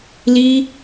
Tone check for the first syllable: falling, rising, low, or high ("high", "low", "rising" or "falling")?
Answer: high